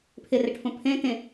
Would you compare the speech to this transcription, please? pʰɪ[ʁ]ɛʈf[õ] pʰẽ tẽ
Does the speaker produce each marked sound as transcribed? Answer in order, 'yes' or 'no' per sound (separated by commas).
no, yes